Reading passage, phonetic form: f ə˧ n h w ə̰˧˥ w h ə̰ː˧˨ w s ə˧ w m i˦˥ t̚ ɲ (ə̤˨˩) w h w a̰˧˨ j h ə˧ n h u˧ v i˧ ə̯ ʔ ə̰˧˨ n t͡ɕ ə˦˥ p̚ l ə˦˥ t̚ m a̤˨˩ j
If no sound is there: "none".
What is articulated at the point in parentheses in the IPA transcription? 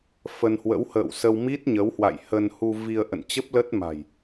ə˨˦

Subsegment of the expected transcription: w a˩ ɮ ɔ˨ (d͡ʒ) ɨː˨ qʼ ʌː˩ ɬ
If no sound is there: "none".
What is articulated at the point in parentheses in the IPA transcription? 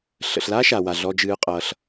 d͡ʒ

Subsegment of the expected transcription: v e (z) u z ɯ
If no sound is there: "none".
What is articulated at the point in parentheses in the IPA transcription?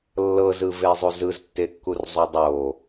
zˤ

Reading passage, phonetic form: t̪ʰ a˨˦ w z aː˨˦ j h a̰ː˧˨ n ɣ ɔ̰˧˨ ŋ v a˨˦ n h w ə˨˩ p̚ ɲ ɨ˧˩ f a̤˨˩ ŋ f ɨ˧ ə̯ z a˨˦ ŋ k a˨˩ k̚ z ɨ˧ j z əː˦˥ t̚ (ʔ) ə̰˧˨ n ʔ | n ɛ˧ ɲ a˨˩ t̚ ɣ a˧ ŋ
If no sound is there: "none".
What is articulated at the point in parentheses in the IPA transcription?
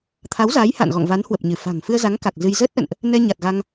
ʔ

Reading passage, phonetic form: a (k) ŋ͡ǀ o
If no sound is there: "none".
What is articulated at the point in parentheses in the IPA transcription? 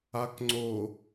k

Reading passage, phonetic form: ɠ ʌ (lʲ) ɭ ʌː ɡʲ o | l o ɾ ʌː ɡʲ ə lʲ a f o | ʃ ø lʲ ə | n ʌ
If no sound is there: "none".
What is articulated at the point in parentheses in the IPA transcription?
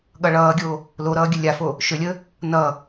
none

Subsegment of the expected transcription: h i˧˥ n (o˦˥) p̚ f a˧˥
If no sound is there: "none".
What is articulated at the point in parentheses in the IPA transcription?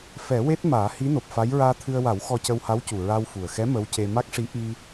o˨˩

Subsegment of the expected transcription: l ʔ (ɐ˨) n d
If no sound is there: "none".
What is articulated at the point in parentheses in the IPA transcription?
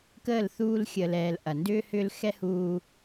ɐ˨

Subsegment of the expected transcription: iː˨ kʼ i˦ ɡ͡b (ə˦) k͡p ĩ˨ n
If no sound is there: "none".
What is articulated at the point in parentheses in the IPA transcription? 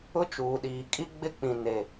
ɪ˦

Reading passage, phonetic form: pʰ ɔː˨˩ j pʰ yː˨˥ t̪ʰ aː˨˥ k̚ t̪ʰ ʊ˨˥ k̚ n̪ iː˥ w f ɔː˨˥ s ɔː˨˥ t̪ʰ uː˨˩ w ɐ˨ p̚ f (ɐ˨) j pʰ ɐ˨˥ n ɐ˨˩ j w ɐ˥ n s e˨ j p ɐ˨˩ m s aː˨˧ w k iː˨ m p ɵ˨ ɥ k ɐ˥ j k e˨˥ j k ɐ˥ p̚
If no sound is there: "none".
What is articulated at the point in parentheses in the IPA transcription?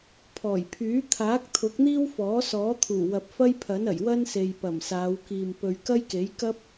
ɐ˥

